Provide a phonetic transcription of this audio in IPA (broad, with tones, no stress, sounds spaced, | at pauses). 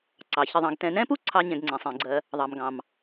ǀ ɑ˩ ç ɪ˨ ðˤ ɑ̃˨ ɡ t ɛ̃˨ n ɛ̃˥ p u˥ ǀʰ ɑ˦ ɲ ɛ̃˨ ɡ ŋ͡ǀ ɛ̃˩ sˤ ĩ˩ ɡ͡ǀ ɜ˨ | ðˤ ɑ˩ m ɡ ɑ̃˩ m